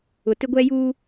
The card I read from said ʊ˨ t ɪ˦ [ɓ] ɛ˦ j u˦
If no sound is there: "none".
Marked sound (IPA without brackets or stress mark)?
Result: ɡʷ